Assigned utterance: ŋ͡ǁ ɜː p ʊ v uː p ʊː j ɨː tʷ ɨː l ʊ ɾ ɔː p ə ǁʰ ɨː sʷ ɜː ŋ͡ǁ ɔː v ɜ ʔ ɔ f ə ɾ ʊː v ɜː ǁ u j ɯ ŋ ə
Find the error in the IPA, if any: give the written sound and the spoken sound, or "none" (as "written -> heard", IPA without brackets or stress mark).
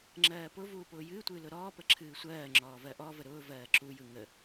f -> v